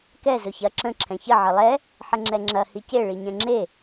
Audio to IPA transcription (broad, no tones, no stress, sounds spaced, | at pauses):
k ɛ z ɵ ç ɐ ǁ ə̃ ǁʰ ɛ̃ ç ə ʕ ə lˠ ɛ | ħ ə ŋ͡ǁ ɛ ŋ͡ǁ ɐ h i c e ɭ i ɲ ɛ̃ ŋ͡ǁ e